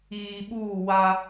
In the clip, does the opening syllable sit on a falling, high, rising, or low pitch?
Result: low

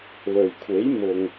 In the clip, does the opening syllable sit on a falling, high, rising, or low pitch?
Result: low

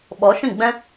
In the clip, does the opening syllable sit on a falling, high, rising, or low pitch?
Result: rising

